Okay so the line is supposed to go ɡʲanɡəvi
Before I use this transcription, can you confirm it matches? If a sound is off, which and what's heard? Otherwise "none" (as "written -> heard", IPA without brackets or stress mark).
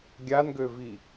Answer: ə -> ø